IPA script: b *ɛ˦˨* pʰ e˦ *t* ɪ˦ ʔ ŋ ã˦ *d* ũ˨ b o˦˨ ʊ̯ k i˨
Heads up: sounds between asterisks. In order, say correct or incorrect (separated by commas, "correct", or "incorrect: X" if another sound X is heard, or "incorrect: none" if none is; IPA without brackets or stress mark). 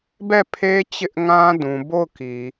correct, incorrect: t͡ɕ, correct